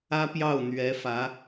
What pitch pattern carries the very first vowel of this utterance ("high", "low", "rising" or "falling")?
high